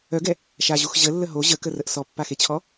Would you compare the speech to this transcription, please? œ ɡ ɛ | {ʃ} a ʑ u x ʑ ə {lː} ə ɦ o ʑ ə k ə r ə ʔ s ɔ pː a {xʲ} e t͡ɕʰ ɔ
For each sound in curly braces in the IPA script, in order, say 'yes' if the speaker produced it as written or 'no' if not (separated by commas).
yes, yes, no